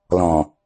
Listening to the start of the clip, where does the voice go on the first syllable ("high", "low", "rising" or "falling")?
low